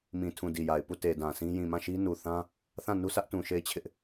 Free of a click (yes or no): yes